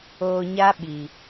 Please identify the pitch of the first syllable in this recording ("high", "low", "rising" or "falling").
low